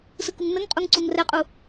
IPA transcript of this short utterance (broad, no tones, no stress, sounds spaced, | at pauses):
s ɯ k u ŋ n ə ŋ qʼ u ŋ ǀ u ŋ r ɛ qʼ u